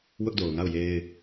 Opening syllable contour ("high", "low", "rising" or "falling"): high